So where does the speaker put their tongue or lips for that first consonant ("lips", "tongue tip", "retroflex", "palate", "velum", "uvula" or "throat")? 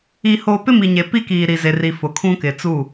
throat